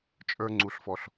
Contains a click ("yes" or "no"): yes